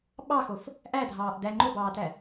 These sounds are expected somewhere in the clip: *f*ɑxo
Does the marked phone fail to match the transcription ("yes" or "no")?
yes